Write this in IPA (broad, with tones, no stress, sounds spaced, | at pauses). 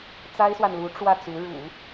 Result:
t͡s a˥ ɪ̯ s w a˨ n l u˧˥ ʈ͡ʂ w ä˥˩ t͡s u˧˥ ɻ ṵ˨˩˦